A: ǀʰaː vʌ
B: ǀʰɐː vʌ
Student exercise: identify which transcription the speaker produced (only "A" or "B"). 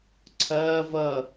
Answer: B